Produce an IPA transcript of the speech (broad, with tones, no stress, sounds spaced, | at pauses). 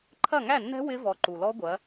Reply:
ǃʰ ɐ˥˩ ŋ æ˥˩ nː ɛ̤˦˥ w ɪ˦˥ v ɔ˨˦ ǃ u˨ l ɔ˦˥ ɡʷ ɐ˨˦